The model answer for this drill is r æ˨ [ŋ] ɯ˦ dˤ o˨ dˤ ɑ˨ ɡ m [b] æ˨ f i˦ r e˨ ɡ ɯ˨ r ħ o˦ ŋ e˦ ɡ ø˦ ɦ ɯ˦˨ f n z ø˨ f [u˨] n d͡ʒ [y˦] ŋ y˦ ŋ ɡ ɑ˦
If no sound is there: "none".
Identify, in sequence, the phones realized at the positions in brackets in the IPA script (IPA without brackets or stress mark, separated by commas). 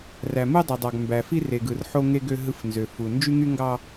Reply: m, b, u˨, y˦